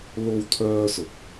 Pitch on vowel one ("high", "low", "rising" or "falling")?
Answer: high